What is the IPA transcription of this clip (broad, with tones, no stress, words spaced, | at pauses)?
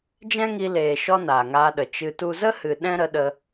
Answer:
d͡ʒɛ̃˦ŋi˧leː˨ʃɔ˧ naː˨ŋaː˧ɗə˨ t͡ʃɨ˧tu˦ zə˦hɨ˨ ɗɛ̃˦ɾə˧ɗə˧